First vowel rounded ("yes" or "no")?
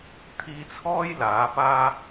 no